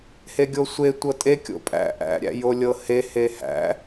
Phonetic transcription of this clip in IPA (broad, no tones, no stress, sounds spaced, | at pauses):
h e ɡʲ o sʷ e tʷ ɤ tʼ e kʲ o̰ pʼ æ̰ ʔ æ̰ ɾʲ æ̰ j o lʲ ɤ h e h e h æ̰